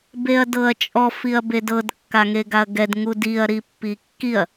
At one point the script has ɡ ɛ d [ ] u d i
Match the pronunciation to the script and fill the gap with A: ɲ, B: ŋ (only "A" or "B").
B